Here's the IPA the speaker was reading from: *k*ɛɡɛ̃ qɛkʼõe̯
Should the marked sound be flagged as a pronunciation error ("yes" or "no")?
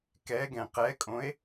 no